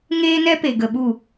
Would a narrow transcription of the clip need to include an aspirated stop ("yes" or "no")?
no